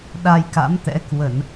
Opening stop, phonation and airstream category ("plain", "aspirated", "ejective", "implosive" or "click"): implosive